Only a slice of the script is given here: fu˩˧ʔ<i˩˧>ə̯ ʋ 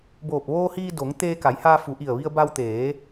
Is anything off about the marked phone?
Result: yes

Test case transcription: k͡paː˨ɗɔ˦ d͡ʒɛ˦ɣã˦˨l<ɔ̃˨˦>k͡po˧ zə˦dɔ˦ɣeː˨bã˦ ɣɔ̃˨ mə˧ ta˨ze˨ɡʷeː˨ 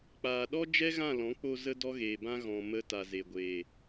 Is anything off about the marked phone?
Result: no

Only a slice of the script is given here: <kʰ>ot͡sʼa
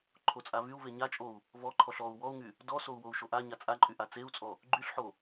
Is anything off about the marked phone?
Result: yes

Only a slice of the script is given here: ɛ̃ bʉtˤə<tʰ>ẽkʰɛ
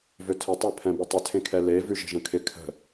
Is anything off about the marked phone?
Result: no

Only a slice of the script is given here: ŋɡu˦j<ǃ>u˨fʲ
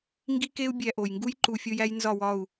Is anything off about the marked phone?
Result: no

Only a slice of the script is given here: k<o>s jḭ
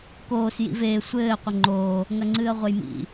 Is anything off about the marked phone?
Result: yes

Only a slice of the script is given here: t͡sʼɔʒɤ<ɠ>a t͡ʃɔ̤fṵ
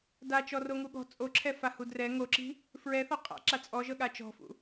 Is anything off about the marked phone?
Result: no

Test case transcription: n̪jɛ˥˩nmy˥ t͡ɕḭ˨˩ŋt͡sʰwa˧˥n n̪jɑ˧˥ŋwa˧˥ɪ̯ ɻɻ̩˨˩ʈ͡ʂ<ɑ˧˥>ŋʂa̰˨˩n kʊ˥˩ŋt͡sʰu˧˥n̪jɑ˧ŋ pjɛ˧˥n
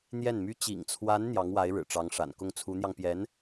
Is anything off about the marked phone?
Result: no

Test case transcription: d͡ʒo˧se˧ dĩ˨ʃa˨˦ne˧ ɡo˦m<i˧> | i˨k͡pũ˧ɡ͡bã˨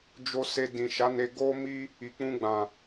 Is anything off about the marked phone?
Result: yes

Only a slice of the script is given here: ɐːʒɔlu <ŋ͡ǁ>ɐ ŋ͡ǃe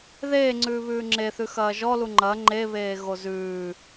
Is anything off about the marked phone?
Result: yes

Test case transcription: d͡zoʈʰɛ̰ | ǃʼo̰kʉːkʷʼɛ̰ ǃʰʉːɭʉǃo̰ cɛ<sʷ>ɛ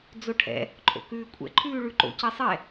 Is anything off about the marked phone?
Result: yes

